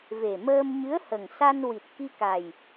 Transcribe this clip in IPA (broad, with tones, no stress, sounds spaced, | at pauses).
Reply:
v e˨˩ m əː˧ m ɲ ɨ˧˥ ə̯ h ə˨˩ ŋ s a˧ n w i˨˩ t̚ k i˧ k a˨˩ j